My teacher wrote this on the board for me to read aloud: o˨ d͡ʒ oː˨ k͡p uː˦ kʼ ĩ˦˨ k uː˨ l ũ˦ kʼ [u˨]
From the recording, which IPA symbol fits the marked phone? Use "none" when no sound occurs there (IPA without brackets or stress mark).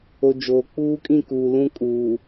uː˨